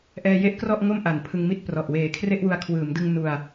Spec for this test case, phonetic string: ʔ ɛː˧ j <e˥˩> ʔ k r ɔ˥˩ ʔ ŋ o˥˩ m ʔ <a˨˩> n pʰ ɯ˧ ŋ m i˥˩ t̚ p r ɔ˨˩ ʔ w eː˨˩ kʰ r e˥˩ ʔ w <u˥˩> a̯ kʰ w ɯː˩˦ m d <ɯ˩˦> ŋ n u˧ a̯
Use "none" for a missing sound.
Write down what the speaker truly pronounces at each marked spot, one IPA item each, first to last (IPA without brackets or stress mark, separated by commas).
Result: e˥˩, a˨˩, u˧, ɯ˧